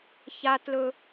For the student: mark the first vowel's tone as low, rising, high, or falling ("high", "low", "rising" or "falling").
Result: high